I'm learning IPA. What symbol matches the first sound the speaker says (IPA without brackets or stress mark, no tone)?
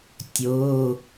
tʲ